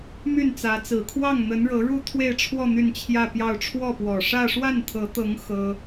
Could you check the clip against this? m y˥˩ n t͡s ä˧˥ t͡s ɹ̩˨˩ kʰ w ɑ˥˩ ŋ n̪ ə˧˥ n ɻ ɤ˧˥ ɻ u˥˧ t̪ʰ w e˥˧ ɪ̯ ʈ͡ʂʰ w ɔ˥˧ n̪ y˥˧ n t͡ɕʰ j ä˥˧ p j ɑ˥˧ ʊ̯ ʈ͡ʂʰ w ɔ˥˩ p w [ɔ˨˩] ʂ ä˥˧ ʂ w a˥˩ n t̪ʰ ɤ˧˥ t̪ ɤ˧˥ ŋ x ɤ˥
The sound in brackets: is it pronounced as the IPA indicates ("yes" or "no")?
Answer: yes